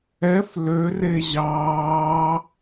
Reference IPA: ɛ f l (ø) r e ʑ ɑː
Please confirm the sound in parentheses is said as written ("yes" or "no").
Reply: yes